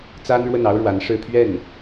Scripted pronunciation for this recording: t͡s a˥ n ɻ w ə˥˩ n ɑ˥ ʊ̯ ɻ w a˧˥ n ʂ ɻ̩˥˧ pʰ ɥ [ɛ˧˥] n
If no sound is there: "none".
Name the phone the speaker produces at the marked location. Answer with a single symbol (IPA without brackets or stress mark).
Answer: ɛ˥˩